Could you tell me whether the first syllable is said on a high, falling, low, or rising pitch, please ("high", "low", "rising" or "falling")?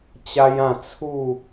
high